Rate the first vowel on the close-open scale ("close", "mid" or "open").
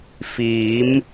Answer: close